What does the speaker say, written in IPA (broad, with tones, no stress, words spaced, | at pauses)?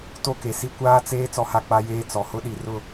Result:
to˦ke˨si˦ kʷaː˦t͡seː˦ t͡sɔ˦ha˦k͡pa˦jeː˦ t͡sɔ˨hʊ˦ɗi˨ rʊ˦˨